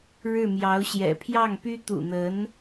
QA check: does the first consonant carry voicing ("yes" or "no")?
yes